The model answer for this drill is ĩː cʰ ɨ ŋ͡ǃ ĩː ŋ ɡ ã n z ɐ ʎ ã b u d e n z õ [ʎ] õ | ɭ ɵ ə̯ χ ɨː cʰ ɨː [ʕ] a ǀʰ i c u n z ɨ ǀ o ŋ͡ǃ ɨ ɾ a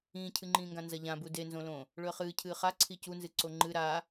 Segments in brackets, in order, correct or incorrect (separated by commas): incorrect, incorrect